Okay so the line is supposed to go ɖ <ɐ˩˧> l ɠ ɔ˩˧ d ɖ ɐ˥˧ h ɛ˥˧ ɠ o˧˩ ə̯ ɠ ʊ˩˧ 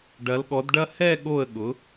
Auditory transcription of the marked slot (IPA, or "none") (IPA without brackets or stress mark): ɐ˩˧